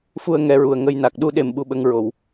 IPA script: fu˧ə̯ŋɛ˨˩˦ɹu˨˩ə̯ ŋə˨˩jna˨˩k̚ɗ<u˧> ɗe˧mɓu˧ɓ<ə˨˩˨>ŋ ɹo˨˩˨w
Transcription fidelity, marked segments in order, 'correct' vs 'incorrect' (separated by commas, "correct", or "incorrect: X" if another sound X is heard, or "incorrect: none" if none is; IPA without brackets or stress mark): correct, incorrect: ə˧